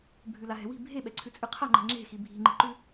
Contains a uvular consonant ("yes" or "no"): yes